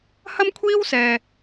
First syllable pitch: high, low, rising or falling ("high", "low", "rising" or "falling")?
high